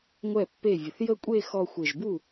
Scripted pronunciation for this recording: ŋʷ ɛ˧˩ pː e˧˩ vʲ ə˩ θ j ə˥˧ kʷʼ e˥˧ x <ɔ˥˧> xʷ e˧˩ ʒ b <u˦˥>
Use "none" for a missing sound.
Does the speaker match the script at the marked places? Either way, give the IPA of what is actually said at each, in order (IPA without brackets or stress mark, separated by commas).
ɔ˥˧, u˥˩